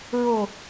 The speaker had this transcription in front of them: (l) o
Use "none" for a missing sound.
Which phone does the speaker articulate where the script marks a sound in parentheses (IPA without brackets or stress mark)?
ɹ